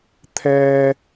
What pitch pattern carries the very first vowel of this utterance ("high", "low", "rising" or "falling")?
high